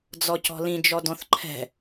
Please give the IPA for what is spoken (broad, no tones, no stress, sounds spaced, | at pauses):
d͡z ɔ c ɔ̤ l ĩ d͡ʒ ɔ d ɔ̃ θ ǃʰ ɛ̤